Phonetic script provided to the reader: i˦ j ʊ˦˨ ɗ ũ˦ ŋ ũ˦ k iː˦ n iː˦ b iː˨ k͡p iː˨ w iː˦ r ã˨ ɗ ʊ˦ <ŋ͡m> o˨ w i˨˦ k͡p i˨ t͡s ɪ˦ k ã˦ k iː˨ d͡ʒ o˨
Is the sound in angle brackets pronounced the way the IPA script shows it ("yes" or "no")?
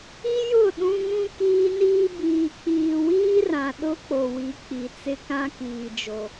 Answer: no